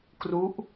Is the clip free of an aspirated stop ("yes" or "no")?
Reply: yes